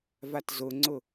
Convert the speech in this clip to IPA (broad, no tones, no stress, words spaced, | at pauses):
vatzʊŋ͡ǀʊ